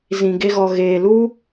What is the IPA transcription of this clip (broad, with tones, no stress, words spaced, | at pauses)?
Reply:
zĩ˨ɡe˧ɣɔ˨ ɣeː˨lu˦